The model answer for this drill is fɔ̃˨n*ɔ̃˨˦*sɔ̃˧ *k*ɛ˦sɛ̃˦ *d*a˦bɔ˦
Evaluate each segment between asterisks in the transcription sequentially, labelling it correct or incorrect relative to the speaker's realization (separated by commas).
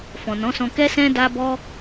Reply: correct, correct, correct